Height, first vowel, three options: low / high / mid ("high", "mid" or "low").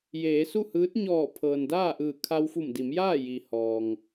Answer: mid